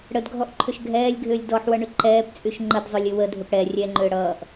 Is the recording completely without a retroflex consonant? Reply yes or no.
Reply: no